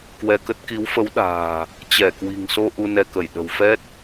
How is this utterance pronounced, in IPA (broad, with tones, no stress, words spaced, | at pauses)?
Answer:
kwɛ˧kə˦˥t̚ ki˨˦wfə˨˦w ɗa̤ː˨˩ | t͡ɕɛ˧˩kwi̤˨˩ŋso˧ ʔu˧nɛ˧kə˧˩j ɗə̤˨˩wfɛ˦˥t̚